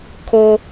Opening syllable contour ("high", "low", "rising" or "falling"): high